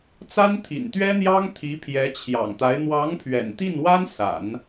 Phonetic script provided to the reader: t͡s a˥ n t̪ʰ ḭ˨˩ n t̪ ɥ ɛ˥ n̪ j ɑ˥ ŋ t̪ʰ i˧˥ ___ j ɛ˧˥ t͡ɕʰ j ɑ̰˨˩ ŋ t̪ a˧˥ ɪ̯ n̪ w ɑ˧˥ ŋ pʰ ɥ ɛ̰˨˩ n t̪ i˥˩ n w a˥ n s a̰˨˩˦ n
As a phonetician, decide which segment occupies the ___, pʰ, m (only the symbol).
pʰ